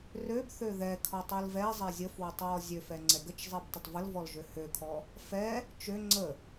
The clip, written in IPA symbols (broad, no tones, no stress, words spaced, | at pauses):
røbθø ðɛkʰɔ tˤɛlvɛzˤɛ zʲəfwətˤ wɔzʲøfɛ ŋ͡ǀɛɡət͡ʃzˤɛb tˤətˤvəlvɔl ʒøhøkʰɔ | fɛ | t͡ʃø ŋ͡ǀə